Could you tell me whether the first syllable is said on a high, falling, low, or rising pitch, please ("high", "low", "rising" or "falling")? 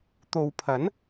low